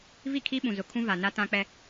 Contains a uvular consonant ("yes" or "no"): no